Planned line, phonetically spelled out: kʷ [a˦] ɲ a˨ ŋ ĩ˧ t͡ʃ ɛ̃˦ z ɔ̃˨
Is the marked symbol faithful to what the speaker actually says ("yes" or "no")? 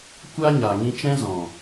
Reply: yes